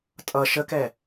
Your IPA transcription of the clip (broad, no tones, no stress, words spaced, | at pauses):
tʼʌ ʃəkɛ